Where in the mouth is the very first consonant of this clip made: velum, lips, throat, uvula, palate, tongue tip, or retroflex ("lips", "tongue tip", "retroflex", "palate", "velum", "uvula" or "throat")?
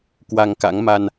velum